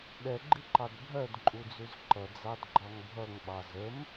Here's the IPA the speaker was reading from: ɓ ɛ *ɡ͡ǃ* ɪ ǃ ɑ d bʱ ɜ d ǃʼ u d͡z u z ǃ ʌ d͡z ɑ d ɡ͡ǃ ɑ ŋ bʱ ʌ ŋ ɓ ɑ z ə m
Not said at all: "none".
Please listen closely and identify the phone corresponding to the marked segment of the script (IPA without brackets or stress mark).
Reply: ɡ͡ǃ